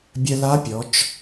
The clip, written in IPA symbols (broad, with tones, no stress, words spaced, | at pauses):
bʲə˧la˧˥pʲɔ˩˧t͡ʃ